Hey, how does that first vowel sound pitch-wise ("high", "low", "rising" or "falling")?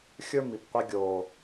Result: high